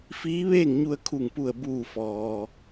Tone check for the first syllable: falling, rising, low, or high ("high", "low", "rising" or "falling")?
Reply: rising